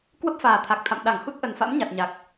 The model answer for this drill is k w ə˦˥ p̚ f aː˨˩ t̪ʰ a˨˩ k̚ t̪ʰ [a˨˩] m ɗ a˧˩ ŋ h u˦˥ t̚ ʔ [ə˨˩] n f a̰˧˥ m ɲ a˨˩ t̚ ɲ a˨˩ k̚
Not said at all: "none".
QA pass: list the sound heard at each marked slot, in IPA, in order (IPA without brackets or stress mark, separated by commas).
a̰˧˨, ə˨˩